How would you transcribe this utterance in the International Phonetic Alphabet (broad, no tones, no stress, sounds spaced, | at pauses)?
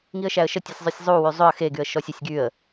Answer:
ŋ i ə̯ ʃ æ ə̯ ʃ ə tʲ u sʲ zˤ y sʲ zˤ u w y zˤ ʏ ə̯ x e ɡ y ə̯ ʃ ɔ sʲ ə sʲ ɡ y ə̯